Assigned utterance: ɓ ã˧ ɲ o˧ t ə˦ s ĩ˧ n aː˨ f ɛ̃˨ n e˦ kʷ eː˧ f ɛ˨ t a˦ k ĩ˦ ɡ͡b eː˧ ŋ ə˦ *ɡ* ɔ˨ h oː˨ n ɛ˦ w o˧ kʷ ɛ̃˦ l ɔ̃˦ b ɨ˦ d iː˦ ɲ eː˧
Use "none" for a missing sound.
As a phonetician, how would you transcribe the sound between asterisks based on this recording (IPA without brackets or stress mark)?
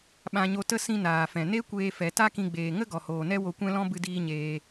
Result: ɡ